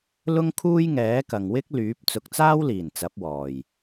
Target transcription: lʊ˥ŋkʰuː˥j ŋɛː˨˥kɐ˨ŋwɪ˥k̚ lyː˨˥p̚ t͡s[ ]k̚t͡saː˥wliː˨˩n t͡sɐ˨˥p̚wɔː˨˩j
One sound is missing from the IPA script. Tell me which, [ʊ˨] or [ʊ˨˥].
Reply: ʊ˨˥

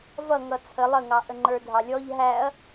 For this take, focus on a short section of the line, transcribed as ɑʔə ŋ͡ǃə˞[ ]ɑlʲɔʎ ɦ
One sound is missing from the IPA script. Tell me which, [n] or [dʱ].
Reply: dʱ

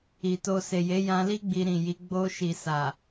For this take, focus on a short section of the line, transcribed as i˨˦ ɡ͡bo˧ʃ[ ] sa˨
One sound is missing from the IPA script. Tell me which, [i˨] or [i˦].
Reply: i˨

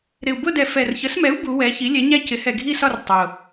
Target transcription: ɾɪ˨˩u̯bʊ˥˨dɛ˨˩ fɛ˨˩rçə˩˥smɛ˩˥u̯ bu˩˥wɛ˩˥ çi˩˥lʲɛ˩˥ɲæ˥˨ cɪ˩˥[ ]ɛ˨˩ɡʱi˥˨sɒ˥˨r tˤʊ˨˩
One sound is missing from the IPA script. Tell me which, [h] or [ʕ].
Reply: h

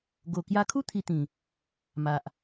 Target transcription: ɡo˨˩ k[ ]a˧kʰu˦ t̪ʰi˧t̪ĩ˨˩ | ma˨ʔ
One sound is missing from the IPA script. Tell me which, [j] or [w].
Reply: j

